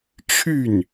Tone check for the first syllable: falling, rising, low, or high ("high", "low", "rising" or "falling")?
falling